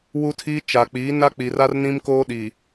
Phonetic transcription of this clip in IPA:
w u˦ tʰ iː˦ t͡ʃ a˨ k͡p iː˨˦ n a˦ k͡p i˨ r a˦ r n ĩ˦ m k oː˦ ɗ i˨

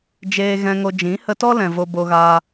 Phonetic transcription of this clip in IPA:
d͡ʒ eː˧ ɣ ɛ̃˧ ŋ o˧ d͡ʒ ĩ˨˦ h ə˧ t ɔ˦ l ɛ̃˨ v o˧ b o˧ ɣ aː˧

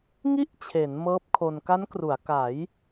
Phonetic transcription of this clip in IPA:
ŋ i˥˩ ʔ t͡ɕʰ e˩˦ n m ɤː˦˥ p̚ kʰ o˧ n k a˦˥ n k r u˩˦ a̯ k a˩˦ j

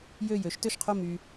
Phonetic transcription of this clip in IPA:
j ø˥˨ j ø˨˥ ʃ t ø˥˨ ʃ qʰ o˥˨ m y˦

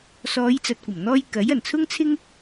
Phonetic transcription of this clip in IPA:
s ɔː˨˧ j t͡s ɐ˨ t̚ kʷ ɐ˨˩ m n̪ ɔː˧ j k ɐ˨˥ j ɐ˨˩ n t͡sʰ ʊ˥ ŋ t͡sʰ ɪ˥ ŋ

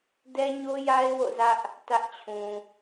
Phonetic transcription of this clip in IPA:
d ɛ˦ ɲ o˦ j a˦ ɪ̯ w o̰˦˨ z ä˦ ʔ | t ä˦ ʔ t͡ɕʰ ũ˨

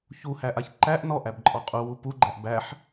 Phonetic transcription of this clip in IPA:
ç u h æ ʔ a ç ǃ æ ʔ n ɔ ʔ æ b ǃʼ ɔ qʼ u w u p u ɡ͡ǃ æ ʔ b æ ħ

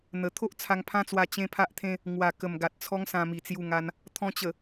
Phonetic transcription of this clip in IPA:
n̪ ə˨˩ t̪ʰ o˦ ʔ t͡sʰ a˧ ŋ pʰ ã˦ t͡s w a˧ t͡ɕ ẽ˦ pʰ a˦ ʔ t̪ʰ ẽ˦ | ŋ w a˨˩ k ə˨˩ m ɡ a˨ t̚ t͡sʰ ɔ˦ ŋ s ã˧ m i˨˩ t͡s j u˧ ŋ a˧ n | t̪ʰ ɔ̃˧ t͡ɕ ə˨˩

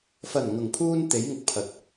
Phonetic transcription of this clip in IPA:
f ɐ˨˩ n ŋ ʊ˨˩ ŋ pʰ uː˧ n t̪ e˨˥ j ŋ ʊ˨ k̚ pʰ ɐ˧ t̚

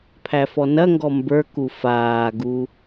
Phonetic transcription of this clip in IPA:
pʰ æ f ɔ n ɐ ŋ ɡ ɔ m b ə˞ k u f aː ɡ u

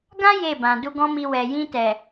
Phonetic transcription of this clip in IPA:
ɡ ã˦ j e˦˨ b ã˨ d u˧ ɡ ɔ̃˦ m i˧ w ɛ˨ j ĩ˧ t ɛ˨

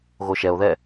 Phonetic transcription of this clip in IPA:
ɣ o ʃ ɛ o̯ ð ɛ

